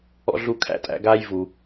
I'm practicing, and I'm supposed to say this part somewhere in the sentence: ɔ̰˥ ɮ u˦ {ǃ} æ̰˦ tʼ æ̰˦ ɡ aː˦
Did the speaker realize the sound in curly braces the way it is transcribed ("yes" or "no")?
no